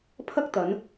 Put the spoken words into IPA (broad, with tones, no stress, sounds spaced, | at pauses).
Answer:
pʰ ɐ˥ k̚ t̪ ɐ˨˧ n